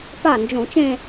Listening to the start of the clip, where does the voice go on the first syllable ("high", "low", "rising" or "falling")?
falling